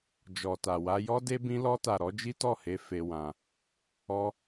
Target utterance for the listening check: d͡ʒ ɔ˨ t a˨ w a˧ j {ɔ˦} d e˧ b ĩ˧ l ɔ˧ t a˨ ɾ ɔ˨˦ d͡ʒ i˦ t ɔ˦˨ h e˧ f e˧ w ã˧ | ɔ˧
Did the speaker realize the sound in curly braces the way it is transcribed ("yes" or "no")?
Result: yes